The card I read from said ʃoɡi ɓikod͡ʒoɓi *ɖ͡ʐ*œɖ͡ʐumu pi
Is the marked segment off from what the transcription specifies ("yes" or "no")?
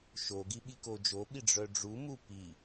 no